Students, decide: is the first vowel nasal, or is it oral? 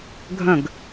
nasal